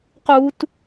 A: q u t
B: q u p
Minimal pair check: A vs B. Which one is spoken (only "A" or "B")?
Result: A